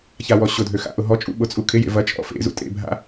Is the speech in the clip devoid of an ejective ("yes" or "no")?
no